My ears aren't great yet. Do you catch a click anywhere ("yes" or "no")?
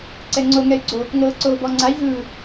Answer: yes